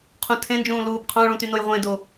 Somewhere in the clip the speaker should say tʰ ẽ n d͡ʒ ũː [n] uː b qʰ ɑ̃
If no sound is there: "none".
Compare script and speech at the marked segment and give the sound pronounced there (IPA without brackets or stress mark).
l